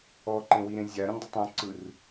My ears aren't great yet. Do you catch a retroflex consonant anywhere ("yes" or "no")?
no